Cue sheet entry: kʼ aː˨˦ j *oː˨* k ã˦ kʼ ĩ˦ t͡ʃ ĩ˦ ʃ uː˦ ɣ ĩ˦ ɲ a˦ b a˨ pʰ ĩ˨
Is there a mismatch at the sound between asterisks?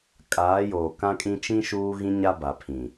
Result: no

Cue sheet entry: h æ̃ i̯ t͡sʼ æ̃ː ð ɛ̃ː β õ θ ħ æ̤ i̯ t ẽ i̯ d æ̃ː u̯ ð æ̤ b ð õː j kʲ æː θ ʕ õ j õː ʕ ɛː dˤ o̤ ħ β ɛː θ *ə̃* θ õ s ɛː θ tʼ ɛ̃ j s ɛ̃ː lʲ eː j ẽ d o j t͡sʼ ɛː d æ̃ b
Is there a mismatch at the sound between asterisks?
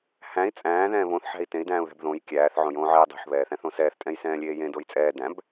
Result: yes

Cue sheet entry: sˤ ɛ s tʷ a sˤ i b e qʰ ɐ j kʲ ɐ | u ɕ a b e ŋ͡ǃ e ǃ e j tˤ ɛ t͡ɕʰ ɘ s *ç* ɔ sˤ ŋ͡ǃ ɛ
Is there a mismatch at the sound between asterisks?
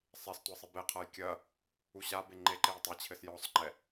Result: yes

